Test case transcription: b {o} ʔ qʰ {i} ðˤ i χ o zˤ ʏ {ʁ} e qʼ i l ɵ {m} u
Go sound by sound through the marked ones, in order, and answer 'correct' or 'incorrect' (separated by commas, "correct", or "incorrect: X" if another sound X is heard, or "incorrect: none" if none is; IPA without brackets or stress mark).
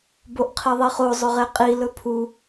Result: correct, correct, correct, incorrect: pʰ